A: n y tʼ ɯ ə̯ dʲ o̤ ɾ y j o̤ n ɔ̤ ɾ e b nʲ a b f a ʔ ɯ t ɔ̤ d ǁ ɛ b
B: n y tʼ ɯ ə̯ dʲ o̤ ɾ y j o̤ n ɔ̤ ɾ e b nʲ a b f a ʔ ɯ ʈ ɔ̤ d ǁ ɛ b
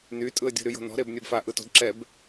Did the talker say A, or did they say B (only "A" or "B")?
A